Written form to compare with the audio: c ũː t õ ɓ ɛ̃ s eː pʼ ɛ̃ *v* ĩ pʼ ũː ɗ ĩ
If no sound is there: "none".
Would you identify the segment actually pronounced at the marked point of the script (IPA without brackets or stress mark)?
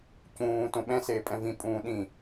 v